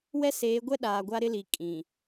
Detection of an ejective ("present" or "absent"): present